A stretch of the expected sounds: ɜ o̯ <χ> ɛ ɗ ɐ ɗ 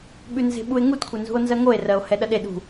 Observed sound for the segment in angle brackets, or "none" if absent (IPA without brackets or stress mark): h